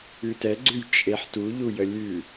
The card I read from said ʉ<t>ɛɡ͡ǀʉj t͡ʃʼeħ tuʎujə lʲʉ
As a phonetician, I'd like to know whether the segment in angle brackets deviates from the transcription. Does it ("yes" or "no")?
no